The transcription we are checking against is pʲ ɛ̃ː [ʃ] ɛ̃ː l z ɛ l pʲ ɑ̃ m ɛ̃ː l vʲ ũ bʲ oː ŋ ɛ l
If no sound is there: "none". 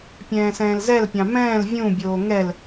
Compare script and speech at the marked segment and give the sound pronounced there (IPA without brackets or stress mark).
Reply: s